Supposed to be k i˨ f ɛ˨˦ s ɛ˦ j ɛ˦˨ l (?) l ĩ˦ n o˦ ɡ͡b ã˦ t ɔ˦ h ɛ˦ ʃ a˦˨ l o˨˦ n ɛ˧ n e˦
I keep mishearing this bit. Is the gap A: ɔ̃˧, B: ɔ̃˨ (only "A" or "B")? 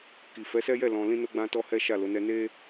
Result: A